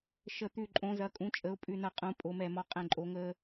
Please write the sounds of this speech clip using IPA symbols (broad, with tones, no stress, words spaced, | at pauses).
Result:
ʃə˧˩t̪ʉ˧˩ ǃʼõ˩˧zɐ˩˧kʼũ˩˧t͡ʃʼə˩˧ʊ̯ pʼʉ˧˩nɐ˧˩ qʼũ˩˧ pʼo˩˧mɛ˧˩mɒ˧ qʼɛ̃˧˩ǃʼo˩˧ŋəː˧